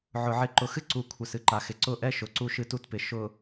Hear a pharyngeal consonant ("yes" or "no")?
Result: yes